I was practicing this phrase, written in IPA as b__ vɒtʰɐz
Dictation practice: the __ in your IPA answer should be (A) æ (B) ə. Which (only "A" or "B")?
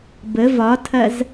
B